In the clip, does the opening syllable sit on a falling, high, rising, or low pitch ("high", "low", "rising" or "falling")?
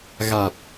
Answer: low